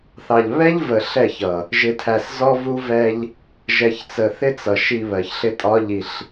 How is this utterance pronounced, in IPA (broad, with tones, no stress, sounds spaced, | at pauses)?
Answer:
θ ɑ˨ ʎ β ɛ˦ ʎ v ə˨ ɬ ɛ˦˨ ç ʌ˨ | ʒ ɪ˨ tʰ æ˨ s z ɔ˦ v u˦ v ɛ˦ ʎ | ʒ ɛ˨ ç t͡s ə˨ θ ɪ˦ t͡s ʌ˨ ʃ i˨ β ɜ˨ ç ɬ ɪ˦ tʼ ɒ˦ ʎ i˨ ɬ